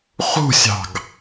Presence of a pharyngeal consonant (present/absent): absent